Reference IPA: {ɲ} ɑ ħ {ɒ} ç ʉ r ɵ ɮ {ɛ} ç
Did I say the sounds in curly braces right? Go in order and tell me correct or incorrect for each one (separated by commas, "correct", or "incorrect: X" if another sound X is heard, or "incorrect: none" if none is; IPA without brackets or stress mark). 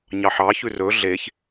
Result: correct, incorrect: ɑ, incorrect: e